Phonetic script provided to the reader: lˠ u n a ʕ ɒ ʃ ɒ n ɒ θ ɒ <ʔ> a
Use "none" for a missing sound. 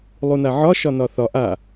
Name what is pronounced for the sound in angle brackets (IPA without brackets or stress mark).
ʔ